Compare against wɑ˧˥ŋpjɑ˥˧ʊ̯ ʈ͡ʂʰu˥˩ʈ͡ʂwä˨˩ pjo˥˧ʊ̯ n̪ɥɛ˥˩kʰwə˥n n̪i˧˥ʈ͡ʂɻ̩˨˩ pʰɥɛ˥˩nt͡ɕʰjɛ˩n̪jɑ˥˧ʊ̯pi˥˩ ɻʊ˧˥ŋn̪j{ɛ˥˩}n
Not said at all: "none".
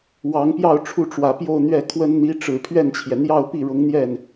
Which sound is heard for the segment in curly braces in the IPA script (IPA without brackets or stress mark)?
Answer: ɛ˥˩